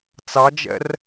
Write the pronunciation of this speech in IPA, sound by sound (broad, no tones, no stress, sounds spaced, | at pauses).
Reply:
t͡s ɑ d͡ʒ ɛ̰ r